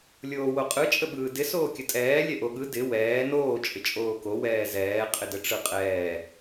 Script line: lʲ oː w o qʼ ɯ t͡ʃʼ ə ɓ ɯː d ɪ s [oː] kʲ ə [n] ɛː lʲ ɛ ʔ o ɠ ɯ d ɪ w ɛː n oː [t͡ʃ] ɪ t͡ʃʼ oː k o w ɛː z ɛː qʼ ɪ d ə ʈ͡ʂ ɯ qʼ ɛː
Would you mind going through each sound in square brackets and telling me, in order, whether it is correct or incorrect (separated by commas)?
correct, incorrect, incorrect